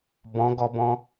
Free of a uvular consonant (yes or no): yes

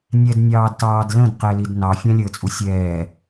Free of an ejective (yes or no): no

